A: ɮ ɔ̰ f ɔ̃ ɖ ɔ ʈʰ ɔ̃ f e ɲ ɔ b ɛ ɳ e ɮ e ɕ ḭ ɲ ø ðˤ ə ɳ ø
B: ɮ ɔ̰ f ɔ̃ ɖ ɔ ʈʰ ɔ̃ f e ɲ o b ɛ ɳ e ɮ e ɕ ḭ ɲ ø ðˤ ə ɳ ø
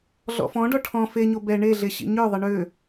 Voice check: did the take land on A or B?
B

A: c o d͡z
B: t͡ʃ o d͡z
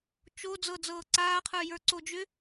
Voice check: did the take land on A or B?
B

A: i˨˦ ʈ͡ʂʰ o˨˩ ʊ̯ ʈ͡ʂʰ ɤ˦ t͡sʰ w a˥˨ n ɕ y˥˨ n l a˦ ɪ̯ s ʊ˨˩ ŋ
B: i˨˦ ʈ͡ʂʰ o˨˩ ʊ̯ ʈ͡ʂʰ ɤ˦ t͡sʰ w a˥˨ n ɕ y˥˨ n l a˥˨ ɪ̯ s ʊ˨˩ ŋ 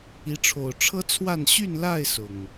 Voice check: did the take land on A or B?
B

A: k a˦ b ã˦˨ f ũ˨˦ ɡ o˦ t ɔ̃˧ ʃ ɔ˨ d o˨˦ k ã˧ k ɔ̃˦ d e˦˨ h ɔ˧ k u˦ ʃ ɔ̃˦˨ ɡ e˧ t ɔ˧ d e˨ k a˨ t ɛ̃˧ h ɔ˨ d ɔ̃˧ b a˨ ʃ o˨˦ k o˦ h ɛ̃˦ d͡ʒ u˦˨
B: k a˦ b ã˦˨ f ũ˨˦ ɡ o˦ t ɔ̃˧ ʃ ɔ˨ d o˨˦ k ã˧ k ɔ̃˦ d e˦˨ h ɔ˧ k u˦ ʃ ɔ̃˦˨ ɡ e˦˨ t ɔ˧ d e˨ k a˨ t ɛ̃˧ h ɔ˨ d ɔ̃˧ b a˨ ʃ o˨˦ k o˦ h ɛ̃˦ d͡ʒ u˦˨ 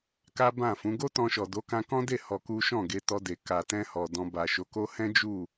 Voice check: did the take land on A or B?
A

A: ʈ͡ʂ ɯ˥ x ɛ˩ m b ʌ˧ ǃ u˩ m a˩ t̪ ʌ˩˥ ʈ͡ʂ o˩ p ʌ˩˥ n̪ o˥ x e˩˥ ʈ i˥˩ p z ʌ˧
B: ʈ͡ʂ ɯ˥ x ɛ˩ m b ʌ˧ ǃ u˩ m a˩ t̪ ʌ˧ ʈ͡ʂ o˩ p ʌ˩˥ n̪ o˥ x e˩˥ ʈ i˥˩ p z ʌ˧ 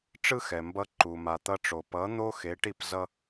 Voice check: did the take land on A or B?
B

